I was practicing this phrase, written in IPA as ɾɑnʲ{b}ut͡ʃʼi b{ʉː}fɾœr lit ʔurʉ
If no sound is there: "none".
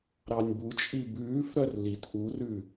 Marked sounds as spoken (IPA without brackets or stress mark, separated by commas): b, ʉː